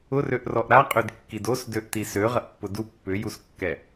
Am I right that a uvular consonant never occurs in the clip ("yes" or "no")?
no